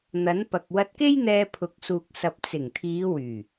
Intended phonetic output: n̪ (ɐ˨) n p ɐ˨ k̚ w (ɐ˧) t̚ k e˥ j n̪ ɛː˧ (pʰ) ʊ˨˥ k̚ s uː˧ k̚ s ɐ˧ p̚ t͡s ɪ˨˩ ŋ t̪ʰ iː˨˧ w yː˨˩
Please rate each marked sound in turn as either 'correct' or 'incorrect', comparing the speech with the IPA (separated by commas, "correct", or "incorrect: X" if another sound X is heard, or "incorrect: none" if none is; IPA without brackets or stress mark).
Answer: incorrect: ɐ˨˥, correct, correct